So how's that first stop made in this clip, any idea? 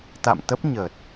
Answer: plain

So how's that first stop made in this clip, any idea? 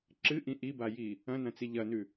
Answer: click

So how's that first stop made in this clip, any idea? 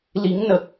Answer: plain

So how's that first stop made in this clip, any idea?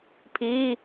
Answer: aspirated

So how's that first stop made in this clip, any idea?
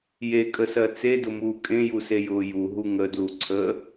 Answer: ejective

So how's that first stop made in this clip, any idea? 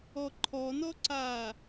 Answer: click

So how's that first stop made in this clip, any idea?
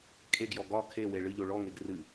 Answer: ejective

